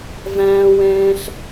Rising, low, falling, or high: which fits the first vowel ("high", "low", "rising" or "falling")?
low